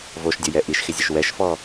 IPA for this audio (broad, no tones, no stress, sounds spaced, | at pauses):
v o ʃ dʲ o j ɛ ʔ i ʃ x ɪ zʲ ə ʃ w ɛ ʃ f ɔ